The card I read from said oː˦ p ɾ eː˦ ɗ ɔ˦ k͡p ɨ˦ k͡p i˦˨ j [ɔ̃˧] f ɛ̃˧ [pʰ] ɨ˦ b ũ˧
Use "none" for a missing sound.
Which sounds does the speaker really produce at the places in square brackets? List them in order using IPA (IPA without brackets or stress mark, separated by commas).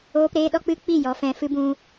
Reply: ɔ˧, f